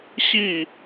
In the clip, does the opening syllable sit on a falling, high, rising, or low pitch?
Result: falling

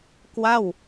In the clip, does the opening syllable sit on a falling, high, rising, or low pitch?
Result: falling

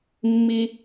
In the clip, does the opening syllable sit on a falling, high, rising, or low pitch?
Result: high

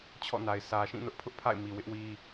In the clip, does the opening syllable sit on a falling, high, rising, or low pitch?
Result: falling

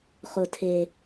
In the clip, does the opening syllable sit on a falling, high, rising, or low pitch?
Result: low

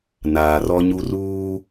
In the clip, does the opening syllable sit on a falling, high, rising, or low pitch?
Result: low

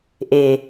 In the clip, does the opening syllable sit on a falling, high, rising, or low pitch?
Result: low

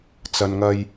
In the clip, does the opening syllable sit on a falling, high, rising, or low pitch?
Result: low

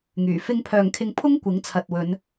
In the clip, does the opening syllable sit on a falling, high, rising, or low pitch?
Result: low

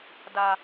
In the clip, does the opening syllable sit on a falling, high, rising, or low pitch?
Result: low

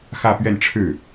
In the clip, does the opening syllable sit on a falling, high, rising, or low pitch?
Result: falling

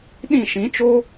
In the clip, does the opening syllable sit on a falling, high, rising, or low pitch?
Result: falling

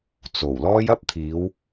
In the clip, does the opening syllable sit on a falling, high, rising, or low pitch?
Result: low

